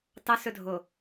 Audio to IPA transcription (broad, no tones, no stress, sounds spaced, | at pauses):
t ɑ s ɵ dʱ o